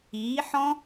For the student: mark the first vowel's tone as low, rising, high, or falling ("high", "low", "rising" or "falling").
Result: rising